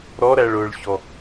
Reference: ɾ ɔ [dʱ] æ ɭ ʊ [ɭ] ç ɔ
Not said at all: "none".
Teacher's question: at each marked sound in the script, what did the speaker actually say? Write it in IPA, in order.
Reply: ɾ, ɭ

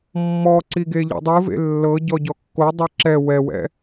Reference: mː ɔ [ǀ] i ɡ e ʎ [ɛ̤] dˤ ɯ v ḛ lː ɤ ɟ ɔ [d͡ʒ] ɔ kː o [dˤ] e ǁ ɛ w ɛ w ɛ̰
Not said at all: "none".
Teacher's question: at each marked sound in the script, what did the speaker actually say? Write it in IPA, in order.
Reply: ǀ, ɛ̰, ɟ, dˤ

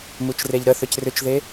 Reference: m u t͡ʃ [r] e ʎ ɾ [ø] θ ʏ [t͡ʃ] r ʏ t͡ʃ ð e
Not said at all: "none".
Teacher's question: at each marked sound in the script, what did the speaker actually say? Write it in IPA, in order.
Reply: r, ə, c

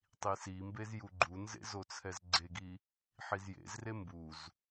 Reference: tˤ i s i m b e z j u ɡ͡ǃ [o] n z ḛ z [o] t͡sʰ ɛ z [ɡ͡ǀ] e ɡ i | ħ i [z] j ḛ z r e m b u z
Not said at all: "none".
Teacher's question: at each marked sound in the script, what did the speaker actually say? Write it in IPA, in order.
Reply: u, o, ɡ͡ǀ, z

